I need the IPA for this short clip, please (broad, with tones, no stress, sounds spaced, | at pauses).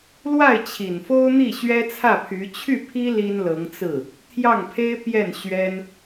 l w a˥˩ ɪ̯ t͡ɕʰ i˨˩ n f o˥ ʊ̯ n̪ i˥˩ ɕ ɥ ɛ˥ t͡sʰ ä˥˩ pʰ y˧˥ t͡ɕʰ y˥˩ pʰ i˥ l i˥ n l ɤ˧˥ ŋ t͡s ɹ̩˥˩ | t̪ʰ j ɑ˥˩ ŋ pʰ e˥ ɪ̯ p j ɛ˥˩ n ɕ ɥ ɛ˥ n